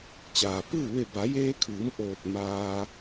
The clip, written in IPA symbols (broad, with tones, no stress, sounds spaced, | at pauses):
t͡ɕ aː˩ p ɯː˥˨ ʋ e˧˩ b a˩˧ j eː˧ kʰ ɯː˩˧ m ʔ oː˧˩ t̚ m aː˧